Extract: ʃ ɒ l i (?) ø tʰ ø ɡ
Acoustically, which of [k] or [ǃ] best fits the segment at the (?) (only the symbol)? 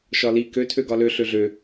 k